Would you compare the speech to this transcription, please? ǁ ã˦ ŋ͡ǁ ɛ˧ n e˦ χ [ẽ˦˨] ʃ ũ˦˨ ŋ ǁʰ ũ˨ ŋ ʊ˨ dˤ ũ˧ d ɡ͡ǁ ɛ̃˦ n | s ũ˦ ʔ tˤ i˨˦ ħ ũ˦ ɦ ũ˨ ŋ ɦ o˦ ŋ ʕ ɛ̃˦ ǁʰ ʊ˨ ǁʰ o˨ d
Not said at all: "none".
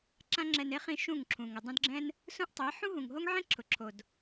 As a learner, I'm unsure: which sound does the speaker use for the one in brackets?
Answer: ĩ˦˨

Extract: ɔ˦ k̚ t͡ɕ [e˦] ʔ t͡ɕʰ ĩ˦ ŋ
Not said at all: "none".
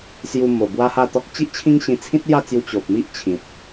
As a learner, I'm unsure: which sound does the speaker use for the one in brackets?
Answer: i˦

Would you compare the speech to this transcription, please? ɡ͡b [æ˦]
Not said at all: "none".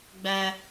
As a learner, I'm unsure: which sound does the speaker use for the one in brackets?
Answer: æ˦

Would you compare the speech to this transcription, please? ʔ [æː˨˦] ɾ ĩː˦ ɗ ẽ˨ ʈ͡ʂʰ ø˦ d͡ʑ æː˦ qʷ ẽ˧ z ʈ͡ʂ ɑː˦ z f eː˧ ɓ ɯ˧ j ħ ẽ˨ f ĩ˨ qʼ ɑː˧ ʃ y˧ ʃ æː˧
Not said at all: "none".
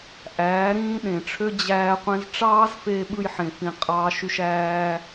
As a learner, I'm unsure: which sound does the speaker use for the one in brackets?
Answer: æː˨˦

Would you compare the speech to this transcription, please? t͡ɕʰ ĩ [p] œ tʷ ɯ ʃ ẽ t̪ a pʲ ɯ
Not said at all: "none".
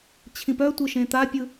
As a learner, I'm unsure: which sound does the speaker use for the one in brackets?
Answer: p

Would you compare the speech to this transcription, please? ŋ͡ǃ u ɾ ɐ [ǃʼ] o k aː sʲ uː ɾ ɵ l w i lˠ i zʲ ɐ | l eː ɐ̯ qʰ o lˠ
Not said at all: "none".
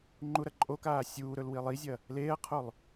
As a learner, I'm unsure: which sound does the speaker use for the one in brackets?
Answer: ǃʼ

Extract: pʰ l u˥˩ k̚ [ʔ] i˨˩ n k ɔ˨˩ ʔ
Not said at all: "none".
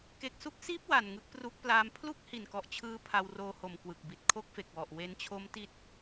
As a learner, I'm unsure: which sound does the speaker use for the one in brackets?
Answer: h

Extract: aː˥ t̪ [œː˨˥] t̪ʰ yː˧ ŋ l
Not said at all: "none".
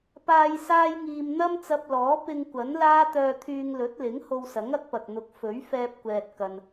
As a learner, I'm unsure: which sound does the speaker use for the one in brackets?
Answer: œː˧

